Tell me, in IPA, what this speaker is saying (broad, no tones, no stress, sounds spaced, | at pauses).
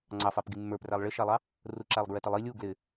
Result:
ŋ͡ǀ ɑ f ɑ p ɡ i mː ə˞ p r æ lˠ ɭ ɪ ʃ æ lˠ ɑ | r u ǁ æ lˠ ɡ ɹ ɛ t ɪ lˠ i lʲ u ɡ l ɪ